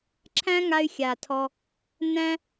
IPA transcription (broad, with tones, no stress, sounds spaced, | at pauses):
ǁʰ æ̃˦ ŋ a˧ y̯ xʲ a˨ tʰ ɔ˧ | n æ̃˦